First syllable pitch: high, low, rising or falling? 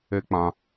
high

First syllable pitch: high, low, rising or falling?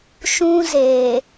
high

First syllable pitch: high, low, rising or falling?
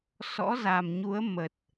rising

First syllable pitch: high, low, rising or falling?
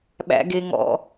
high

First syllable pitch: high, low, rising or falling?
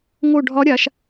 falling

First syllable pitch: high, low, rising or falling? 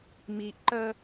low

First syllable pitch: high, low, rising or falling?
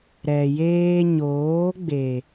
low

